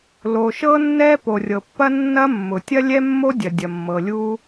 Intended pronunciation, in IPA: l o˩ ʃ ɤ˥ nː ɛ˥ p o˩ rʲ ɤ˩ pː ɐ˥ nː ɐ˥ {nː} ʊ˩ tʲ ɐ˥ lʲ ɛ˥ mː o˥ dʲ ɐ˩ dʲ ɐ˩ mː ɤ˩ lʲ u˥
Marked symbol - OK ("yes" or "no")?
no